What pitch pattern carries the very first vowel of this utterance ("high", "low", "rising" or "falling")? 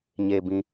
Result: low